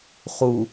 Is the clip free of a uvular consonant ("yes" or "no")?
no